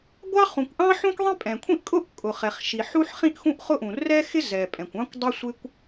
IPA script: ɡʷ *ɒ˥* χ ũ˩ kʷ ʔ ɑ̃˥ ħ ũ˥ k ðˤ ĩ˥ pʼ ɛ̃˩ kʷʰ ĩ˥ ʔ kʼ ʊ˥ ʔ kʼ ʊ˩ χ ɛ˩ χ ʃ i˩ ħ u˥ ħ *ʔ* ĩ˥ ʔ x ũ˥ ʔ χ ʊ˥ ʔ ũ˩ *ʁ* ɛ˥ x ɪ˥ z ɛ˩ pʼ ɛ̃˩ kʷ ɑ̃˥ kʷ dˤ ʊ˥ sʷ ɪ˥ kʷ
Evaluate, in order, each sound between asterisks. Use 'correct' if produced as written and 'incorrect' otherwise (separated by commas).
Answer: incorrect, incorrect, incorrect